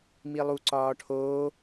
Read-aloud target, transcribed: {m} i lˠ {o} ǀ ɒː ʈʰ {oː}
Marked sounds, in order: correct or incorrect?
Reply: correct, incorrect: u, correct

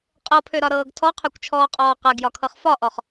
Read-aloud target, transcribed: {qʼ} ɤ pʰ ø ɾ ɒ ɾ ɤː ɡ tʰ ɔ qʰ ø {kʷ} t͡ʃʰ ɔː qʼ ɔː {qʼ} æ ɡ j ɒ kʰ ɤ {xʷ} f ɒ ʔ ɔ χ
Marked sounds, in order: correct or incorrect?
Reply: correct, correct, incorrect: q, incorrect: χ

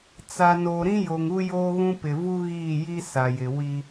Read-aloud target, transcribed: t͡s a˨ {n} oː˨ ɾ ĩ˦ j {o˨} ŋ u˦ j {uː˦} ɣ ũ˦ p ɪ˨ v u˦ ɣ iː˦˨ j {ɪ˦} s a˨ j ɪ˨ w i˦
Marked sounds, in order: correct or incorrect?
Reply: correct, correct, incorrect: oː˦, incorrect: i˦

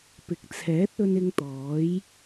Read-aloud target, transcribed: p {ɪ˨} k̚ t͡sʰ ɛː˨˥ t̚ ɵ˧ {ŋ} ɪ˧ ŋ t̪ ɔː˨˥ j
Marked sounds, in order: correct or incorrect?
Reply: correct, incorrect: n

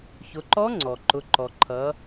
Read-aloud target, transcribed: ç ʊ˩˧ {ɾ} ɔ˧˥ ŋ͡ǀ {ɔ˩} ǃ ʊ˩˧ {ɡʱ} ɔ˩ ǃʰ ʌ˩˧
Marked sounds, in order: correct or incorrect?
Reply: incorrect: ǃ, correct, incorrect: ǃ

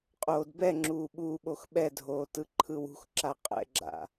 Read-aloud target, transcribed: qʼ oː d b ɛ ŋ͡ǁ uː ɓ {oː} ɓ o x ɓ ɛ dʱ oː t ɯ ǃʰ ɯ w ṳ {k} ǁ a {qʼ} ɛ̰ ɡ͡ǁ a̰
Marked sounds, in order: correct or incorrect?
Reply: incorrect: uː, incorrect: x, correct

